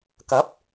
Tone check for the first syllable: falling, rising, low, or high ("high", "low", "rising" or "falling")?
rising